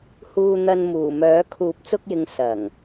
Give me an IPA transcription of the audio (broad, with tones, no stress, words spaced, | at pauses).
huː˧n̪ɐ˧n muː˨˩mœː˨˥ kʰuː˨˥p̚t͡sʊ˧k̚jɪ˨ŋ sɐ˨˩ŋ